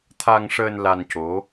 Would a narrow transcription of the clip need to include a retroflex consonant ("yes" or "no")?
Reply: yes